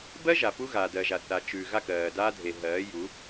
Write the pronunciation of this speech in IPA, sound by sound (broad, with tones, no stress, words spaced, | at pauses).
bɜ˦ ʒa˨pu˦ ɣa˨dɜ˨ʒa˨θa˨ t͡ʃʉː˨ ɣa˦˨kɜː˨daː˦ dʱe˨ɦɜː˨˦ju˨˦